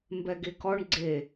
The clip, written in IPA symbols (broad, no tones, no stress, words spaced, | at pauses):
mbɛɡekɔɳ ɡ͡ǀe